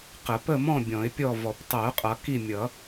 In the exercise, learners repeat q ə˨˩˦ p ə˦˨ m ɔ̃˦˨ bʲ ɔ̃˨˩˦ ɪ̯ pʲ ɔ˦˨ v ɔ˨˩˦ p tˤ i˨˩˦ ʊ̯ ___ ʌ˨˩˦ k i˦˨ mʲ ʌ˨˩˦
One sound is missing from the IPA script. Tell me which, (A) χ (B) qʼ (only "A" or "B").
B